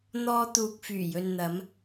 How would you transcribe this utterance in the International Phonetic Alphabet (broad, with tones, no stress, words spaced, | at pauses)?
n̪ɔː˧ t̪uː˨k̚fyː˨˩jɵ˨nn̪ɐ˨˧m